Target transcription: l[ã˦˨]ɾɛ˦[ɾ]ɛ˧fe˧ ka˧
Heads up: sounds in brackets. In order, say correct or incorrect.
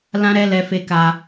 incorrect, incorrect

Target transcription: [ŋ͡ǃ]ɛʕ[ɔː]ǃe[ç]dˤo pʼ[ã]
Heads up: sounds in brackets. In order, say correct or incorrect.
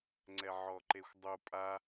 incorrect, incorrect, incorrect, incorrect

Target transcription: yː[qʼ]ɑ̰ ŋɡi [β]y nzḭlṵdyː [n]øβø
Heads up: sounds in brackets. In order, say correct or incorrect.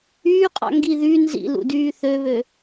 correct, incorrect, incorrect

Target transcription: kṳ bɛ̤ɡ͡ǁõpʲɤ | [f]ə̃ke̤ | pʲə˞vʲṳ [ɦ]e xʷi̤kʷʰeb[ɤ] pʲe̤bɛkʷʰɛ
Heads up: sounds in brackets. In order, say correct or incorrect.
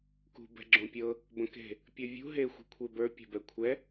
incorrect, correct, incorrect

